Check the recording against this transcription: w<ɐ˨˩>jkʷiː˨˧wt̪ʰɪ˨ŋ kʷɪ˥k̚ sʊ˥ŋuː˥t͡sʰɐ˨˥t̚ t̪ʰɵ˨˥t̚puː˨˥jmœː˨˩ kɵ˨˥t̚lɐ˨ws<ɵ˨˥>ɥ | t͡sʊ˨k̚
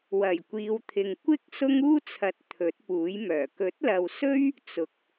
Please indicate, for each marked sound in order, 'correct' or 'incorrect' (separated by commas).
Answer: correct, incorrect